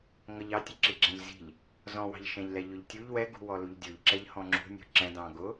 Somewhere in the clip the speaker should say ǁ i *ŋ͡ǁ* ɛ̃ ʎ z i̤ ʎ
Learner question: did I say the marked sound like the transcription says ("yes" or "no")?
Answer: no